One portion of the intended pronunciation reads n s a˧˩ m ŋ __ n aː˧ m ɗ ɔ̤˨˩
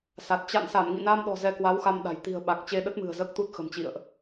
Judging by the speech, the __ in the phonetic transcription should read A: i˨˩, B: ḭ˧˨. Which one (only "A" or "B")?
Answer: B